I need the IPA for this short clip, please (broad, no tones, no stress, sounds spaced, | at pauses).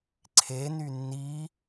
ǀʰ e n y nː i